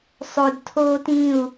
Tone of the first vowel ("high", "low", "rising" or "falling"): low